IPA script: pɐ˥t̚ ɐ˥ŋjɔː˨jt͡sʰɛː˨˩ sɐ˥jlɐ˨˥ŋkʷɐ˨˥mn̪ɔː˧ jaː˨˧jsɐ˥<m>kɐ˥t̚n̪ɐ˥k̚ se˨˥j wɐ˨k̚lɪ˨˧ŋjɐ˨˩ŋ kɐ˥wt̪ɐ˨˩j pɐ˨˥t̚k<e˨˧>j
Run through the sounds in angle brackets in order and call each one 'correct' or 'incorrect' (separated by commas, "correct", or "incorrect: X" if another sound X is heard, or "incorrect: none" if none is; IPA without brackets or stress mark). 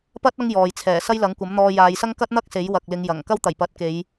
incorrect: ŋ, correct